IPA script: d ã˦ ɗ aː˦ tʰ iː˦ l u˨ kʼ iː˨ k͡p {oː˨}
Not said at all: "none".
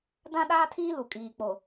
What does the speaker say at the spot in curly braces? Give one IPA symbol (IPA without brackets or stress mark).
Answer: o˨